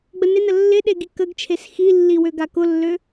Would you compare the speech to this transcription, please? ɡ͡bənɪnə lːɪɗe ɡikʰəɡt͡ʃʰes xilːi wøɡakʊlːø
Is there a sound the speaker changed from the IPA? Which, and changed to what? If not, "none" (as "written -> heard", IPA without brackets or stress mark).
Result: kʰ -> k